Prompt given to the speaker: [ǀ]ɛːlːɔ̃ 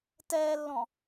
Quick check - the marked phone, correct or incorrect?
incorrect